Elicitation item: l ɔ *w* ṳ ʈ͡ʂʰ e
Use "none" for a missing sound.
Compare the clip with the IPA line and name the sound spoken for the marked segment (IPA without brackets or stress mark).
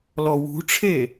w